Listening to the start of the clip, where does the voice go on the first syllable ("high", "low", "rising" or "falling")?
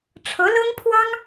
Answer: rising